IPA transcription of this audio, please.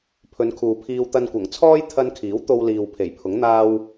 pʰɵ˨˧nkʰuː˨pʰiː˧w t̪ɐ˧nkʷɐ˨˩ŋt͡sʰɔː˥j t̪ʰɐ˧nkʰiː˨˥w t̪o˧wliː˨w pʰe˨˩jpʰʊ˨˥ŋ n̪aː˧w

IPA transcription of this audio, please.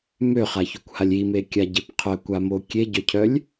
møχaçokʷhalʲ imekʲaɟep qʰœkʷamo kʲeɟœcʰœlʲ

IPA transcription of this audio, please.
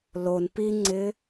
lon piŋ͡ǀɪ

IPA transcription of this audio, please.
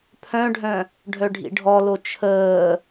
pʰœ̃ɖʱœ̃ | ɖʱœɖʱḭɖʱɔlo t͡ʃʰəː

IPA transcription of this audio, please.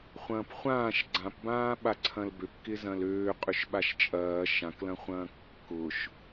χʷɐ̃ːpχʷãːʃ ɡ͡ǀãpbãː ɓaǀʰɐ̃lbøp kɪzɐ̃løː qʼʏʃɓaʃt͡ʃʼɐː ʃãklɐ̃χʷɐ̃ː kːʊʃ

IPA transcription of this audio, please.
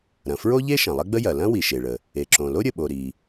ɾɐ̃˩fɹo˥ʎe˥ ʃɐ̃˩lˠɐ˥ɡ͡bə˥jɐ˩ lɐ̃˥ wi˩ʃe˩ɭə˩ | e˩ǁõ˩lo˥ ɾʲə˩ɓo˩ ɾi˩

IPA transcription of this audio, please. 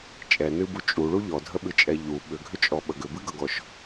t͡ʃʼɛnɨbu t͡ʃʼuɭu ʎɔdʱəɓɨt͡ʃʼɛ ʎu ɓʏɡʱʏt͡ʃʼɔɓə ɡʏbɨɡʌɡɔʃ

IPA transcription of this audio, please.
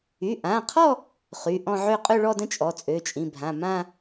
y˩˧˩ʔã˩˧˩qʰɔ˥˧ | χy˩˧˩ʔɔ̃˥˧ʕø˥˧ qʼø˥˧ɭɔ˥˧də̃˥˧ t͡ʃʼɔ˩˧˩t͡sʼø˩˧˩t͡ʃʼĩ˩˧˩bʱã˩˧˩ mã˥˧

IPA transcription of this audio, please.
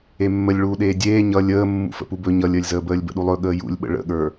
emːəlʲɭuːɗeː dʲeː ɲʌ lʲəː mːṵfə̰pubɵ ɲʌlʲəːlʲzəːbəːlʲ bə̰ɗulˠɵ ɠəːjṵlʲɓə̰ ɭə̰ɠə˞

